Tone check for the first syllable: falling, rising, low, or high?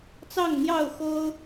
falling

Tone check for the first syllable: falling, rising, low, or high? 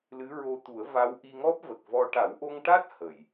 rising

